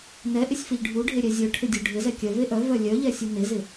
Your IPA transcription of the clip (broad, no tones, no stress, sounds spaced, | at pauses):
n ɛ ʔ ɪ sʲ f ɪ ʎ ɖʱ u ɖʱ e ɾʲ ɛ zʲ œ ʈʰ ɪ dʲ u ɖʱ ɪ z ɛ kʲ œ v e ʔ œ v œ lʲ œ ʎ ɛ sʲ u n e z ɪ